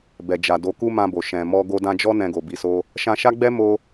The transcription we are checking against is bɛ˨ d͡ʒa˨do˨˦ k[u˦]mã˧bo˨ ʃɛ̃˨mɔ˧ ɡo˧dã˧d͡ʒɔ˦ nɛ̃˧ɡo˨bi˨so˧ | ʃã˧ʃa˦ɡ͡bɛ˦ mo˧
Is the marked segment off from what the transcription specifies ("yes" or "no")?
no